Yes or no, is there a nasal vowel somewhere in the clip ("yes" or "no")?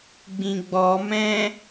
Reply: yes